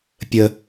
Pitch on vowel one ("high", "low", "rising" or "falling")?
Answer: low